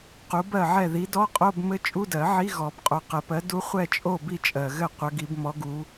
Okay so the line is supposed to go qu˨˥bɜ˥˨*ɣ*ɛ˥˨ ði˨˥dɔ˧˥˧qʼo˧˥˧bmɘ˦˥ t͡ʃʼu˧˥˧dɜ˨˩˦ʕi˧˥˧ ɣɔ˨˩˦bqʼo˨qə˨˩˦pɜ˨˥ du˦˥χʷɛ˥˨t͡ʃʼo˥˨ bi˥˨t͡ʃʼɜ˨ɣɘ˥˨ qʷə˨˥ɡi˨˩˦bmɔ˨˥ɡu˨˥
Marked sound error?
yes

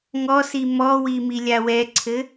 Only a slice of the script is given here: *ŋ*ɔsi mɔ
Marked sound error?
no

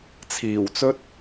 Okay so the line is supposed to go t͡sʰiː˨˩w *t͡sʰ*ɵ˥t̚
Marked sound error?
yes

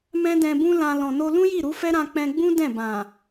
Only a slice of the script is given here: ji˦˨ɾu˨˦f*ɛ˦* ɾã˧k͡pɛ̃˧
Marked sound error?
no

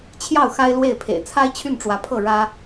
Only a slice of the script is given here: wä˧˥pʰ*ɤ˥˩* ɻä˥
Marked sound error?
no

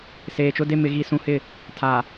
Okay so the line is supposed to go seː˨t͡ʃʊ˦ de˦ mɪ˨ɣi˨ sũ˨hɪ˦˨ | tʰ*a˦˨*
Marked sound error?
yes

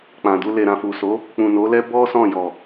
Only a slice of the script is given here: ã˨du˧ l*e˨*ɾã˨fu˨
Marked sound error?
no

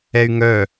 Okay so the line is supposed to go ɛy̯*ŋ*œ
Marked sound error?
no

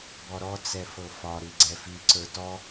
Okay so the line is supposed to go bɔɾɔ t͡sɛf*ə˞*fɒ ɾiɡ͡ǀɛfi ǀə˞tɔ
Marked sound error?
yes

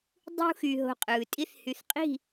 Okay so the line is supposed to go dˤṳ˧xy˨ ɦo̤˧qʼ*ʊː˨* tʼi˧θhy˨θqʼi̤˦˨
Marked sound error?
yes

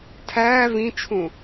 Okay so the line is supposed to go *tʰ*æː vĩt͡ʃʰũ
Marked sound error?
no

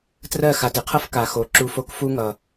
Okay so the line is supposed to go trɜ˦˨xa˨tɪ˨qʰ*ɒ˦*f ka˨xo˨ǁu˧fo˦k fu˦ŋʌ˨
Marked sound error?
yes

